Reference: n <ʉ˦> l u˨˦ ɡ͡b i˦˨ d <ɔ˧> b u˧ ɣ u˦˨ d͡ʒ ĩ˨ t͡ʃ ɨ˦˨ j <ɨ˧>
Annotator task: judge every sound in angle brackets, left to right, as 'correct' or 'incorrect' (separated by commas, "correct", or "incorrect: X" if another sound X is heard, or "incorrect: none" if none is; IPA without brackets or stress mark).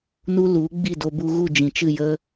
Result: incorrect: u˦, incorrect: o˧, incorrect: ə˧